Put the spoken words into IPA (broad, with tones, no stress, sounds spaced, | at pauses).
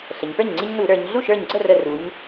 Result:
ɬ ə˩˧ ɲ p ə˞˥˩ ɲ ŋ͡ǀ i˦ ɲ n u˧˩˧ ɾ ə˞˩˧ ɲ ɮ u˥˩ ʃ ə˞˧˩ ɲ ɡ͡ǀ ə˥˩ r ə˧˩ r u˩˧ ɲ